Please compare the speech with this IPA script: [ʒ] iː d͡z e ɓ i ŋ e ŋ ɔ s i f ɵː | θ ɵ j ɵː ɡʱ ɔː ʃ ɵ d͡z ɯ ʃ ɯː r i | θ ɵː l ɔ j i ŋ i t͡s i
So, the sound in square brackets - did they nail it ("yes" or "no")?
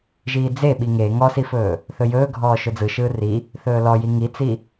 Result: yes